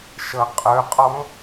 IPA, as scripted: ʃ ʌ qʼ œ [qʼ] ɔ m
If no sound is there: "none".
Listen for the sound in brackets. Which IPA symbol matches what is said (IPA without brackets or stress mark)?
qʼ